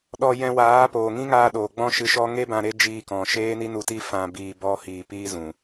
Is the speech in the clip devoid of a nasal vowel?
no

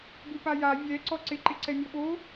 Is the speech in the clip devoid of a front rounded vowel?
yes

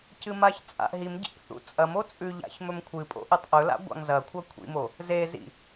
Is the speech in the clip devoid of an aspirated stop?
no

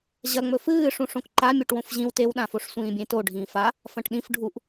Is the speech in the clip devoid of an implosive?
no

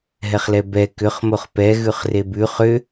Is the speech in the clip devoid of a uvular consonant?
no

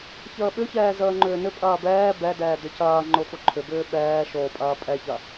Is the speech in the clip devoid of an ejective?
no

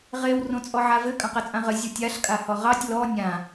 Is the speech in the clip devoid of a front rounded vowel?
yes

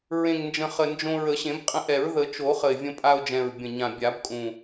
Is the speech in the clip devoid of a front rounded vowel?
yes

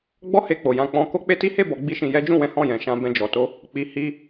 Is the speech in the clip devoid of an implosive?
yes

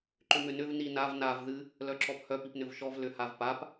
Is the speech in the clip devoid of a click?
no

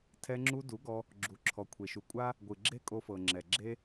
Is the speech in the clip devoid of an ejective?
no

